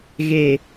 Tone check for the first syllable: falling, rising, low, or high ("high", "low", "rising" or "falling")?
low